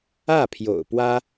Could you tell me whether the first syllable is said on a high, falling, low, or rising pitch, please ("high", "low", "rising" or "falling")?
falling